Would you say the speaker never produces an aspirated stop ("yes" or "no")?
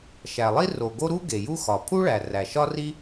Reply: no